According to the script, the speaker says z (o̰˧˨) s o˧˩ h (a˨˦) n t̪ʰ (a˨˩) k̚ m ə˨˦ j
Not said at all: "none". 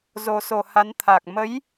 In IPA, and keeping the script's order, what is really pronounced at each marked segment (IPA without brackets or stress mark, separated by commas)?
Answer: o˨˩, a˨˦, a˨˩